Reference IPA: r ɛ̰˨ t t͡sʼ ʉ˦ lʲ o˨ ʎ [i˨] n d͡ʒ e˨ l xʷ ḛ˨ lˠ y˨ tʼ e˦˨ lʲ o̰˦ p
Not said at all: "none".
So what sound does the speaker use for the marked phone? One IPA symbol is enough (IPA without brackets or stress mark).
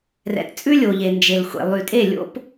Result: e˨